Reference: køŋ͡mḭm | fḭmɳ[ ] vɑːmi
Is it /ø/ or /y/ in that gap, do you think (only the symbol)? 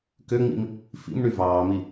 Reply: y